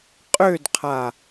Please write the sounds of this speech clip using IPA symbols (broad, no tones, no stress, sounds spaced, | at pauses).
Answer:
qʼ ø d qʰ a